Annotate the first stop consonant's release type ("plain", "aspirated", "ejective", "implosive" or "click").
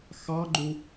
click